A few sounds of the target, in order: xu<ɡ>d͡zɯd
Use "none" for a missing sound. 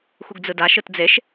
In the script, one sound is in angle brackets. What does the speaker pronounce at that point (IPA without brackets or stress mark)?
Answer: ɡ